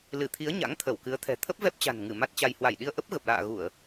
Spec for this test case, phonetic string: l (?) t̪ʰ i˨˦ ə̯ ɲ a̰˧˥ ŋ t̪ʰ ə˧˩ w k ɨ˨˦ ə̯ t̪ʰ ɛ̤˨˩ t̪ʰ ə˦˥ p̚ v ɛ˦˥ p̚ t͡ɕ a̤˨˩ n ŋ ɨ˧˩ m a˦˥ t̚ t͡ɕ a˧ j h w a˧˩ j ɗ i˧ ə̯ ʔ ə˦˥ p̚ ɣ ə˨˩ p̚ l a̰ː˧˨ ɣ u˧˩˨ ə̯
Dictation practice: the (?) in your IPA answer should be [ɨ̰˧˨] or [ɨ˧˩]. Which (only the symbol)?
ɨ˧˩